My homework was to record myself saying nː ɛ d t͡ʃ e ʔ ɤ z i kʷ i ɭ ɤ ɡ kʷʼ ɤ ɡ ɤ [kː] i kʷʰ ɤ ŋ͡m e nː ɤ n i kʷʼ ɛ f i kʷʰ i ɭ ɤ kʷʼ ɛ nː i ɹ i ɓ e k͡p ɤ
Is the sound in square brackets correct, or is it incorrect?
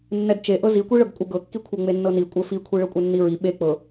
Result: correct